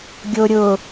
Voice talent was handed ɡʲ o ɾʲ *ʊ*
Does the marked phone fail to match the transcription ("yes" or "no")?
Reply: no